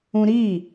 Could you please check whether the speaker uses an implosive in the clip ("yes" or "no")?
no